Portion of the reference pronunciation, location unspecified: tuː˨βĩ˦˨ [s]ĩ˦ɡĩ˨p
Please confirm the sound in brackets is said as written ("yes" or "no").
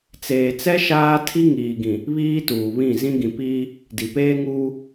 no